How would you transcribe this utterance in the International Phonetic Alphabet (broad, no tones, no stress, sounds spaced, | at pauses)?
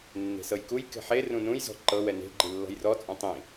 nː e̤ s ɤ j k u j k e̤ ħ e r ũ n ũ j z ɔ̤ ǃ ɤ w ɛ n e̤ ɡ͡ǃ i lː ɔ̤ j r ɔ t͡sʼ ũ tˤ ĩ